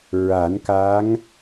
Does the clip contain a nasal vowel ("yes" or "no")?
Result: no